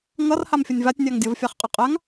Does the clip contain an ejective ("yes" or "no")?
yes